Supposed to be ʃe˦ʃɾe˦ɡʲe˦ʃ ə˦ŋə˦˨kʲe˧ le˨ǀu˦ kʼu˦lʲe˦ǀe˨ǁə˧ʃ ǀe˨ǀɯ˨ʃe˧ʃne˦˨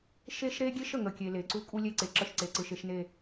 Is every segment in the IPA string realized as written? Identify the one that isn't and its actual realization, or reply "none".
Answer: none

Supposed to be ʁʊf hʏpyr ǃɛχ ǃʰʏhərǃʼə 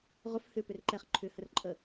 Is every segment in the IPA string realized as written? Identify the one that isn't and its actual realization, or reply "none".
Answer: y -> ʏ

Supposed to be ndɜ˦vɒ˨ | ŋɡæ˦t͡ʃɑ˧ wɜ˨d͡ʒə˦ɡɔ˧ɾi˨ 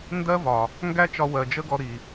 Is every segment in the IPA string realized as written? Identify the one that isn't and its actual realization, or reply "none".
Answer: ɑ˧ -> ɒ˧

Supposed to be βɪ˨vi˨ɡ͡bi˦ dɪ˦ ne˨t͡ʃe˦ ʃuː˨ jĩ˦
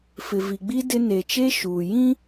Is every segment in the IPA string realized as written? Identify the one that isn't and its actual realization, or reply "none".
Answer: β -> f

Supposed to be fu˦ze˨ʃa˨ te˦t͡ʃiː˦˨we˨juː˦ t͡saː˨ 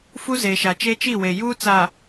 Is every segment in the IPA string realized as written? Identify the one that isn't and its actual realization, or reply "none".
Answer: t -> t͡ʃ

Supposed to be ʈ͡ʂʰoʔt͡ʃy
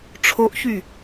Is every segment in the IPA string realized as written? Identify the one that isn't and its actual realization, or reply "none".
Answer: t͡ʃ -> ç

